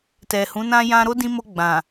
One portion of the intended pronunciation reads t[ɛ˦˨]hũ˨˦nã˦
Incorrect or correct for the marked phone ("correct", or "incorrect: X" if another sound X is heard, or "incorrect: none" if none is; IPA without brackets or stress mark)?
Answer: incorrect: ɛ˨